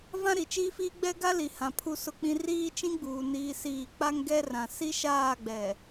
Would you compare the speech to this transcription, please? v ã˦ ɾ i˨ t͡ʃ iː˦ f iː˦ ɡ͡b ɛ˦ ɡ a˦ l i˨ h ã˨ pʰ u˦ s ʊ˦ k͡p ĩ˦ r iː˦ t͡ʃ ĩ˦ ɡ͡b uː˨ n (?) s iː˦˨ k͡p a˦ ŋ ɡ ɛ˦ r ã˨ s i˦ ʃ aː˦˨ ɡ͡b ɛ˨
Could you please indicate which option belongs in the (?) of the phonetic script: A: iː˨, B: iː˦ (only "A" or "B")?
B